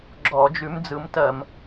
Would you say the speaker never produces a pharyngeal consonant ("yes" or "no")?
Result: yes